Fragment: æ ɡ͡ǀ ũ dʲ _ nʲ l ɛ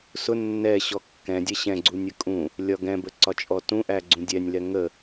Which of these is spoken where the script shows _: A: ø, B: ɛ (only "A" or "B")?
B